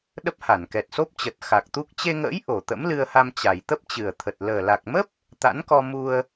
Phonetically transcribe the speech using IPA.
ɗ ə˦˥ p̚ h a˧˩ n k ɛ˨˩ t̚ s o˦˥ p̚ t͡ɕ ə˨˩ t̚ x a˨˩ k̚ t̪ u˦˥ k̚ t͡ɕ e˧ ŋ ə̰ː˧˥ j ʔ o˨˩ t̪ ə̰˧˥ m l ɨ˧ ə̯ h a˧ m t͡ɕ a˨˩ j t̪ ə˦˥ p̚ t͡ɕ ɨ˨˩ ə̯ t̪ʰ ə˨˩ t̚ l əː˨˩ l a˨˩ k̚ m ə˦˥ p̚ | t̪ a̰˧˥ n k ɔ˧ m u˧ ə̯

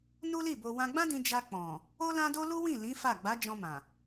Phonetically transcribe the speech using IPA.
n u˦ l i˦˨ b o˧ w ã˧ ɡ͡b ã˦ d ĩ˧ d͡ʒ a˧ k͡p ɔ̃˨ | o˦ l ã˦ d o˦ l u˦ w ĩ˦˨ l ĩ˨˦ f a˦˨ ɡ͡b a˨˦ d͡ʒ ɔ̃˧ m ã˨

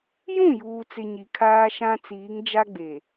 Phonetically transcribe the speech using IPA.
j ũ˦˨ j uː˨ t͡s ɪ˨ ɲ i˨ kʰ aː˦ ʃ ã˦ t͡s iː˨˦ ŋ d͡ʒ a˦ ɡ͡b e˨

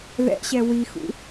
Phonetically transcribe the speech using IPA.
ð ɛ̰ ɕ ɛ w i x ṵ

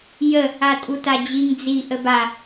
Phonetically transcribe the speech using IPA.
j ə | a tʼ u t a d͡ʑ i ŋ d͡z i ʔ ə b a

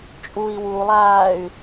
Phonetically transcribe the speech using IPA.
t͡ʃʼ u i̯ w u lˠ aː y̯

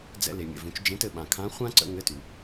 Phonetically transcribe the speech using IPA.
d͡z ɛ̰˧ l e˩ mʲ ə̰˩ v ũ˩˧ t͡ʃ d͡ʒ ẽ˧˥ t ɘ˧ ɓ ã˩ kʰ ã˧˥ χʷ ã˥ ǀ ə̰˧ ŋ ɘ˧˥ t ʉ˩

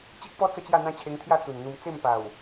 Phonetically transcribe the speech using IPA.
t͡ɕ i˦ k̚ p ɔ˦ t͡s ə˥˧ t͡ɕ j a˥˧ n̪ ã˦ t͡ɕʰ e˧ ŋ t̪ʰ j a˥˧ t͡s u˨˩ n n̪ u˧ m t͡s e˥˧ m p a˨˩ w

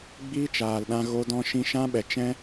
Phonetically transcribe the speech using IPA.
ɡ͡b iː˦ t͡ʃ aː˨ l ɗ ã˧ ɣ o˦ d ɔ̃˦ ʃ ĩ˦ ʃ ã˦ ɓ ɛ˨ t͡ʃ ɛ̃˦

